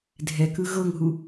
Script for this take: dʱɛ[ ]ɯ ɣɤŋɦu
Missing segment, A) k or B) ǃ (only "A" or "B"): A